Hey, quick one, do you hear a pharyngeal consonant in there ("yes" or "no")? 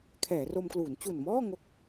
no